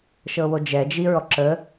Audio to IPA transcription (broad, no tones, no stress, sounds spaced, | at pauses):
ʃ ɤ w o d͡ʒ ɛ d͡ʒ i ɹ ɔ ǁ ə